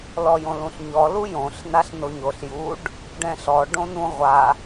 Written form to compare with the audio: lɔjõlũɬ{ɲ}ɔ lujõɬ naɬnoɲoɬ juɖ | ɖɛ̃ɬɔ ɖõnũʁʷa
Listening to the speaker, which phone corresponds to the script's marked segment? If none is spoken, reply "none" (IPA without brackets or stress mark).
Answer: ɲ